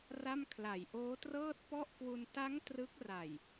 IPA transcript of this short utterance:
r a˥˩ m kʰ l a˨˩ j ʔ oː˦˥ t r ɤː˥˩ t̚ p ɔ˥˩ ʔ k w u˧ n t a˦˥ ŋ t r ɯ˦˥ k̚ r a˨˩ j

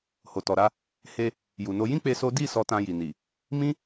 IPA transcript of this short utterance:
h o˨ t ɔ˨ ɾ a˧ | h e˧ | j u˨ n o˧ j ĩ˦ k͡p e˦ s o˦ d i˦˨ s ɔ˧ t ã˧ j i˨ n i˨ | m ĩ˦

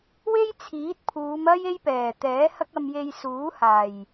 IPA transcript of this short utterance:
w e˥ j t͡sʰ iː˨˥ t̚ pʰ uː˨˧ m ɐ˥ j e˥ j p ɛː˨˩ t̪ ɛː˨˥ h ɐ˥ k̚ ɐ˧ m j e˧ j s uː˨˥ h aː˨˩ j

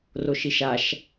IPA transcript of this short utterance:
r o ʃ i ʃ a ʃ

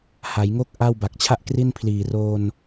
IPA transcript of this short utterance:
h a˩˦ j ŋ o˥˩ k̚ ʔ a˥˩ w b a˨˩ k̚ t͡ɕʰ a˥˩ ʔ k r i˥˩ n pʰ l iː˨˩ r oː˧ n

